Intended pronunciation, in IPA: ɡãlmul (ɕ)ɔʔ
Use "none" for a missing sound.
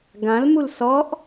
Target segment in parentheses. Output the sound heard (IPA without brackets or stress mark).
s